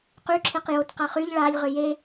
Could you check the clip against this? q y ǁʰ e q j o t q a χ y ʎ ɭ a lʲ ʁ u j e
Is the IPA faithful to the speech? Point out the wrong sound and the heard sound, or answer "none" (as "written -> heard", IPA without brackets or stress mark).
u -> ʏ